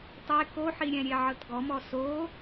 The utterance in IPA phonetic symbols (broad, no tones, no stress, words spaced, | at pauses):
tˤe koħiɾʲɛ̃ ɾʲeʕɤtɡɔmɔ so